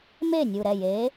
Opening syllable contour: falling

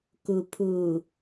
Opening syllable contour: low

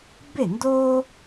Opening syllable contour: falling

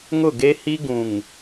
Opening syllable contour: falling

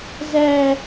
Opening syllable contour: high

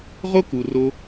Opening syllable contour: high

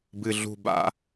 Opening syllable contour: low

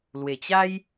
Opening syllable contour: low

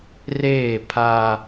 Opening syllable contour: falling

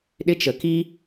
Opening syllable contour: high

